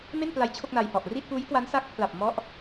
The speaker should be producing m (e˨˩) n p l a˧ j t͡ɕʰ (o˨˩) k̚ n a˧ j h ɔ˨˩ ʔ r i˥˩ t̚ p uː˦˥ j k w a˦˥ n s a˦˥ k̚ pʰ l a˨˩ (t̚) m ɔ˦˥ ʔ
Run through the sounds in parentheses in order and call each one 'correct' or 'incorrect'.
incorrect, incorrect, incorrect

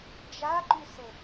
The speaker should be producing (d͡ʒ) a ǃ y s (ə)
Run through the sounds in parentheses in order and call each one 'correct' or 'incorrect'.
correct, correct

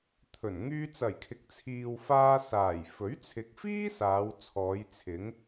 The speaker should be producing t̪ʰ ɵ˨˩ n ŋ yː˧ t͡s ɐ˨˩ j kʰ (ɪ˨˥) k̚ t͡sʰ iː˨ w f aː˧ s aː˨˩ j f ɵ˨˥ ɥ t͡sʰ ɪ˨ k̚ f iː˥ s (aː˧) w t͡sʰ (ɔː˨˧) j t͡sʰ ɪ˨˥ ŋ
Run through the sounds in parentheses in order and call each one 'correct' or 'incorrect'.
correct, incorrect, correct

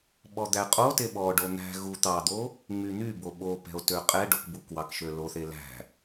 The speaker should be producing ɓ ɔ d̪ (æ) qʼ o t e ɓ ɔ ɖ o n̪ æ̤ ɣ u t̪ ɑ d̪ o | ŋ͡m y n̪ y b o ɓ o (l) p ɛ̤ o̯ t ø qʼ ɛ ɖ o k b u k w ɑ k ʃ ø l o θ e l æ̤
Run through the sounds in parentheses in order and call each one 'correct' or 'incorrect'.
correct, incorrect

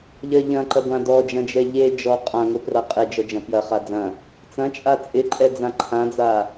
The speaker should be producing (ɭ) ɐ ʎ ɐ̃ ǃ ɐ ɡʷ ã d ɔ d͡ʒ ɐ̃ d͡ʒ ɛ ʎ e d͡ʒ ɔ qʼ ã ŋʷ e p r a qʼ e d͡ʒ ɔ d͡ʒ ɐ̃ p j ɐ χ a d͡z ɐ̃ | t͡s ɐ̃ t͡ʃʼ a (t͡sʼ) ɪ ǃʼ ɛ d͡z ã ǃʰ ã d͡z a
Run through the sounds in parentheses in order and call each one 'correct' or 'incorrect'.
incorrect, correct

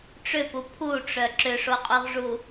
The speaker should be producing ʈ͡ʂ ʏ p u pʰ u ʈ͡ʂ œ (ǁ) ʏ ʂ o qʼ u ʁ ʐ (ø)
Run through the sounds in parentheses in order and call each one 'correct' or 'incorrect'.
correct, incorrect

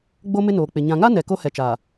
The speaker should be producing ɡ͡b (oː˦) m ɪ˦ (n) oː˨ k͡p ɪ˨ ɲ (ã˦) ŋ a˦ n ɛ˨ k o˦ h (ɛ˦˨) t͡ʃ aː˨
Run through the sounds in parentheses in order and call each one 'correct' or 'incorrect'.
incorrect, correct, incorrect, incorrect

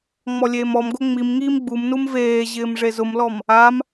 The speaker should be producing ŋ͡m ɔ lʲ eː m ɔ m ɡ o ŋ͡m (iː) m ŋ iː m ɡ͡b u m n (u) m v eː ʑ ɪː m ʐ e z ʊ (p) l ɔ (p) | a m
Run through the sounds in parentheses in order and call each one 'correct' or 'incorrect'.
incorrect, correct, incorrect, incorrect

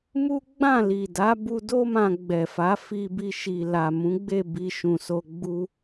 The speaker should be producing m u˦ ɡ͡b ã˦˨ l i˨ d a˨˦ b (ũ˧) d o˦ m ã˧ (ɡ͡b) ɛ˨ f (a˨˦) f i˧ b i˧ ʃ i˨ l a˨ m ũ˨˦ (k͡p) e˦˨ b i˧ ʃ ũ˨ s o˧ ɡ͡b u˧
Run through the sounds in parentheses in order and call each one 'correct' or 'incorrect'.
incorrect, correct, correct, incorrect

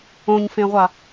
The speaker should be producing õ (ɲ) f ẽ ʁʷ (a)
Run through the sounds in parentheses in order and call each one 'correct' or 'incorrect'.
correct, correct

